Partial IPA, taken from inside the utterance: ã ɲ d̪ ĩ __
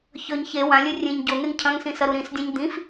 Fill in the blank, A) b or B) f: B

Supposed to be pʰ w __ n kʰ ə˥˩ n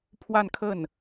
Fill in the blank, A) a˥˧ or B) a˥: A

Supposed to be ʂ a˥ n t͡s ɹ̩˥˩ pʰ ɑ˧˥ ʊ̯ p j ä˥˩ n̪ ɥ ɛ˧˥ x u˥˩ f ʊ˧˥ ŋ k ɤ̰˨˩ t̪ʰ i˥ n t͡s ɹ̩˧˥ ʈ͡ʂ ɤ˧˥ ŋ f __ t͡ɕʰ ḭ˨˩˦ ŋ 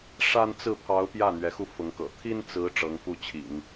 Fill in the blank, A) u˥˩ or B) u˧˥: A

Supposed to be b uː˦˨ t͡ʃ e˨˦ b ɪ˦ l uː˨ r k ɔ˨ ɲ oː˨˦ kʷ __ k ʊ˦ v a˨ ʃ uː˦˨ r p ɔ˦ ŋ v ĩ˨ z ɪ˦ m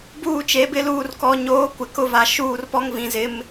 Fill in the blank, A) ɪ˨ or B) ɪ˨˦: A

